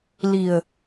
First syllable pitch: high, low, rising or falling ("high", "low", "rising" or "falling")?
low